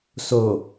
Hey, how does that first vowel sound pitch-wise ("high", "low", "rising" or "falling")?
low